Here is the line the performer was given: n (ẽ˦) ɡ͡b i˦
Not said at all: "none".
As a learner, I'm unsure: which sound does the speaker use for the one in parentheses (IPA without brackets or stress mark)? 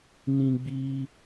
ĩ˦